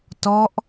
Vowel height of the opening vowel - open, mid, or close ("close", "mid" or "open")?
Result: mid